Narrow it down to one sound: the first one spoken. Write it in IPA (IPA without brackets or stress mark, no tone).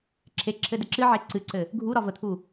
ǁʰ